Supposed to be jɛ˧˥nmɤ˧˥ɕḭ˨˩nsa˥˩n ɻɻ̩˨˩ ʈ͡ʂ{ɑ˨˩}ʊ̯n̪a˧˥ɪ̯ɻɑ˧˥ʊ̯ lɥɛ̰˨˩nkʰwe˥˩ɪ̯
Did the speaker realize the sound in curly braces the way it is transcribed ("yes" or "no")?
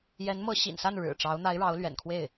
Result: no